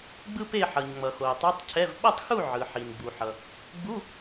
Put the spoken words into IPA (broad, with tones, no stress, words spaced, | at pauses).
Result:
ɡ͡bɯ˥pe˥˨ ħʌ˩ɲŋ͡mʌ˩ xo˩ə̯tˤo˧˥˧tˤcʰɛ˧˥˧v ɓʌ˥˨tˤxu˥˨ ʕɯ˩ħi˩nɡ͡bu˩ħʌ˩ | ɡ͡bu˧˥˧